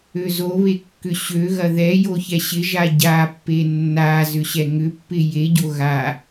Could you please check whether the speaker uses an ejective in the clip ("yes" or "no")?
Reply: no